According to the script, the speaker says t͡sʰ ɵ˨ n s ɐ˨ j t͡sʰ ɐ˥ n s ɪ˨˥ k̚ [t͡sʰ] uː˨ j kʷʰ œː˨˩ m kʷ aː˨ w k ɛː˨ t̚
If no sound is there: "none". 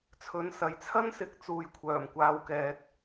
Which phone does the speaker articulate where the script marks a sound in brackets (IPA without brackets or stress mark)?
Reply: t͡s